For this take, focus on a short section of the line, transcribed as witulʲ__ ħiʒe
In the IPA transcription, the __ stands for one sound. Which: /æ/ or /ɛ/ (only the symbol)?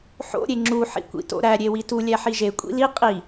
æ